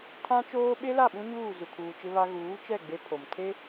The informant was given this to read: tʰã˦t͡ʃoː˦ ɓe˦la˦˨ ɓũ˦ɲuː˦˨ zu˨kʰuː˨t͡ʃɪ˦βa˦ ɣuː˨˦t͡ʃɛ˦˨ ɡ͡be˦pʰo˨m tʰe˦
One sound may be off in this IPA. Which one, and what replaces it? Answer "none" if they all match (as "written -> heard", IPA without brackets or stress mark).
none